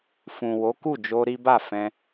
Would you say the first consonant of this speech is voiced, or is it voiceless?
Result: voiceless